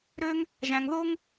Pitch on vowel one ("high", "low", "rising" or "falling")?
high